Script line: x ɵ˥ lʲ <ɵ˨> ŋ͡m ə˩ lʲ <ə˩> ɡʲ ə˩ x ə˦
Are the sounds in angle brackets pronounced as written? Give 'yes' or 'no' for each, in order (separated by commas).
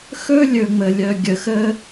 yes, no